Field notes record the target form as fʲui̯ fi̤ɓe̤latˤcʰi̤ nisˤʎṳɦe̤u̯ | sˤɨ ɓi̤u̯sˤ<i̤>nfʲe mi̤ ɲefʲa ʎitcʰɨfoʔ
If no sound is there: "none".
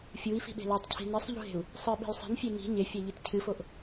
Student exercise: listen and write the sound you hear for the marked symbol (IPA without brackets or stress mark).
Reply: i̤